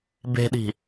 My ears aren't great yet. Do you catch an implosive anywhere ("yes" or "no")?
yes